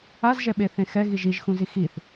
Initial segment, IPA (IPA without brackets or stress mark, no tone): a